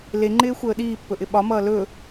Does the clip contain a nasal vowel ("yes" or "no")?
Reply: no